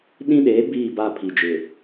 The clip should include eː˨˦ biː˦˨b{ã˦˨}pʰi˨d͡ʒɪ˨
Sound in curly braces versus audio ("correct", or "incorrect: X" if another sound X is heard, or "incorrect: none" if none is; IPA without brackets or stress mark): incorrect: a˦˨